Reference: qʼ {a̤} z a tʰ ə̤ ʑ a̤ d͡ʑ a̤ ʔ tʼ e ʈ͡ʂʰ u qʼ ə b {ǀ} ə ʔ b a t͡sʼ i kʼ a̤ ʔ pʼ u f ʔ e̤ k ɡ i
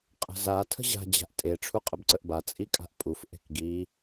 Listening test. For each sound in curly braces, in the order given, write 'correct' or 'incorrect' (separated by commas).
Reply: incorrect, correct